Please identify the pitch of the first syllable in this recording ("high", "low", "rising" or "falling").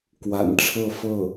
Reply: low